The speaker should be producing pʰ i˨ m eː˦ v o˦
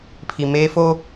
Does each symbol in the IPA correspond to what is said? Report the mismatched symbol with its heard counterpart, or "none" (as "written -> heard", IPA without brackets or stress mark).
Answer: v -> f